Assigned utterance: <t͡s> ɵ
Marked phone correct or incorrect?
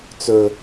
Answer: correct